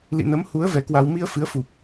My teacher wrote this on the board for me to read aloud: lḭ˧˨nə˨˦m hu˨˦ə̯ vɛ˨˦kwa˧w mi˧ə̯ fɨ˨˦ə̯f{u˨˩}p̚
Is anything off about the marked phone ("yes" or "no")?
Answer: no